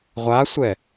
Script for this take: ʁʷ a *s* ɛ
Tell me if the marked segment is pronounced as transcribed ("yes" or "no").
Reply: no